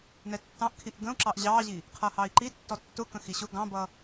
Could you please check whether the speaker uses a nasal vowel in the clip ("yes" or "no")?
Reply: yes